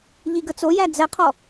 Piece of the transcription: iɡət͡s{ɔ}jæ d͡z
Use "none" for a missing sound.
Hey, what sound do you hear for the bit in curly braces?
o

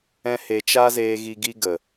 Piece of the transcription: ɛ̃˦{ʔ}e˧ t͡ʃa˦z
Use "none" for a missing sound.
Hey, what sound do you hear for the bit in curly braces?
h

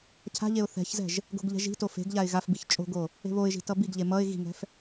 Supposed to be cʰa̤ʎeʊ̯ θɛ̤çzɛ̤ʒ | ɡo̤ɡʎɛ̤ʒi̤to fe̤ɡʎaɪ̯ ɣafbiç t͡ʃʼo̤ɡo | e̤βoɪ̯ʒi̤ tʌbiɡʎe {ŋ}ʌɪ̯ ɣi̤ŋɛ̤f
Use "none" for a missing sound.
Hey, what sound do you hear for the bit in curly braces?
m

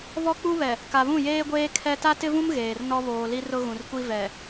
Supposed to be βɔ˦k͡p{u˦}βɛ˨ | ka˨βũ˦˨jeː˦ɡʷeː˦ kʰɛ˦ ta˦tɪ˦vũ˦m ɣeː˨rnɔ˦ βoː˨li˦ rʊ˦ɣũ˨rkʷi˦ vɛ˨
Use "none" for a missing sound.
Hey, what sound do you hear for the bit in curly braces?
u˦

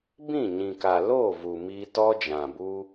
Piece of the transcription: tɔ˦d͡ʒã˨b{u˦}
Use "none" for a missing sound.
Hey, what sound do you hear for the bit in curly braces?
u˦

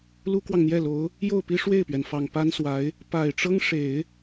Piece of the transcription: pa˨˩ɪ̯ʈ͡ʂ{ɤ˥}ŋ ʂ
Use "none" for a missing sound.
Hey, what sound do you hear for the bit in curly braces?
ɤ˥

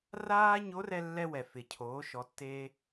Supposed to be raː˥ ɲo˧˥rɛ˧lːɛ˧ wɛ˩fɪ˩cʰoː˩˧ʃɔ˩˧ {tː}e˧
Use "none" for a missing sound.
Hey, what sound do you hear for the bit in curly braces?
tː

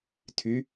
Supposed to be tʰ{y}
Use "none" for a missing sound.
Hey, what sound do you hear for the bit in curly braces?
y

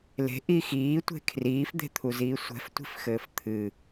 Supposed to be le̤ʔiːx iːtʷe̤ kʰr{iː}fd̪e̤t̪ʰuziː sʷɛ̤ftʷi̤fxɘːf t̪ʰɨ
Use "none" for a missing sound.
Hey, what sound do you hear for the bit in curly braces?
iː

